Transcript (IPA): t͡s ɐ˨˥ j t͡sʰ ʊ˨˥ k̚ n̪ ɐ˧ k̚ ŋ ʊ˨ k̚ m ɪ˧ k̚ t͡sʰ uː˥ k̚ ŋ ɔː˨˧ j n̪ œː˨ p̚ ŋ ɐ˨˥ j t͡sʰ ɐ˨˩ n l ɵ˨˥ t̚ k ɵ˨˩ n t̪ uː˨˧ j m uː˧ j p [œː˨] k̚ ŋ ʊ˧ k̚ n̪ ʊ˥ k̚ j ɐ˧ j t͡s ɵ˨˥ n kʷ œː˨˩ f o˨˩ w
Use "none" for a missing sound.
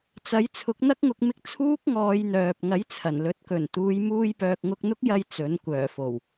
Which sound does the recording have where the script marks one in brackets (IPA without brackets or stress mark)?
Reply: œː˨